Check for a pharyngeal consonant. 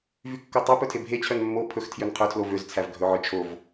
present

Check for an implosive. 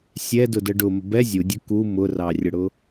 absent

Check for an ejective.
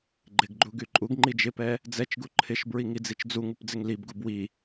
present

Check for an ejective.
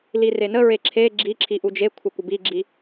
absent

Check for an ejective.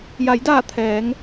absent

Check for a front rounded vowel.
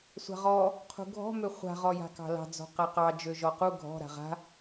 present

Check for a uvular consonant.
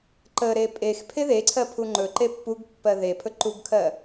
absent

